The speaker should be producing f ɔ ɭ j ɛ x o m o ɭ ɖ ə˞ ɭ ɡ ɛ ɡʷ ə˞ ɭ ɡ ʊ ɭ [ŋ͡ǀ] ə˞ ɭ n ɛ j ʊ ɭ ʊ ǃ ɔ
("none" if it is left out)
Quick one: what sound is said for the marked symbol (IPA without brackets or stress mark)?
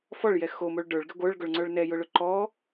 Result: ŋ͡ǀ